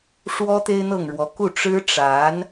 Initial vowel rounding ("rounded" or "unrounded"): rounded